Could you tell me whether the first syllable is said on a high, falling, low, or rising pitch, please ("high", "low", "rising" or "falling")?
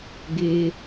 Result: low